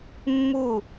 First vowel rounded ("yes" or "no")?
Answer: yes